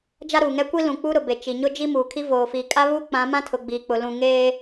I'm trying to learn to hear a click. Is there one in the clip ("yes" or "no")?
no